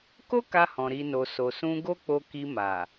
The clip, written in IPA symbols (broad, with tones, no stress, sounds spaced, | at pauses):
k o˦ k a˧ h ɔ̃˨ ɾ i˨ n o˨ s o˨ s ũ˧ ɡ o˦ k͡p o˧ k i˧ m a˨